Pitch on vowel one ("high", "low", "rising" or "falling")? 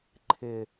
low